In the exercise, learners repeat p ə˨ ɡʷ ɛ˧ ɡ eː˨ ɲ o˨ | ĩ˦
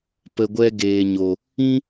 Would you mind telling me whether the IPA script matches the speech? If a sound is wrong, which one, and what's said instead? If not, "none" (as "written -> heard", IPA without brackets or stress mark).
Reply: none